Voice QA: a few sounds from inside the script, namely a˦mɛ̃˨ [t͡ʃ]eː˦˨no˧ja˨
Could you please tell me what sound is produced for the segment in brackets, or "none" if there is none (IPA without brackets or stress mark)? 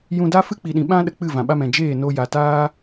d͡ʒ